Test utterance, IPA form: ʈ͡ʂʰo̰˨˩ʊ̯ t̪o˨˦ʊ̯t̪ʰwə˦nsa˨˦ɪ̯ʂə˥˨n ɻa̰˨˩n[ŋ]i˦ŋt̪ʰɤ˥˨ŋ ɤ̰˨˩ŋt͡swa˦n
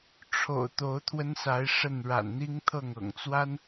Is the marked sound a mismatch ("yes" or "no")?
yes